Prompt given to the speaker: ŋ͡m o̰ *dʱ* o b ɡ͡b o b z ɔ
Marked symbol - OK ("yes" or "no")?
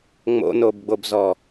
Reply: no